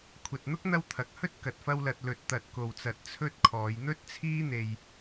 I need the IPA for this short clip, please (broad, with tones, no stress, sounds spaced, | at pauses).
kʷʰ ɐ˨ t̚ n̪ ʊ˥ k̚ n̪ ɐ˧ w t̪ʰ ɐ˨ k̚ h ɵ˥ t̚ k ɐ˨ t̚ f ɐ˧ w l ɐ˨ t̚ l ɵ˨ t̚ t̪ ɐ˨ t̚ k o˨ w t͡s ɐ˨ t̚ t͡sʰ ɵ˥ t̚ kʰ ɔː˨˧ j n̪ ɵ˥ t̚ t͡sʰ iː˥ n̪ e˧ j